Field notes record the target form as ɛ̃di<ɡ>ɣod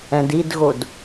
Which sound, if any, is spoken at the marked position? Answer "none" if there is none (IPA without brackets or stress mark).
d